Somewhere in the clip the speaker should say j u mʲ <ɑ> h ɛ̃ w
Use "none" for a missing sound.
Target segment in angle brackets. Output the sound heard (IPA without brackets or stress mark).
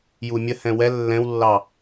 ə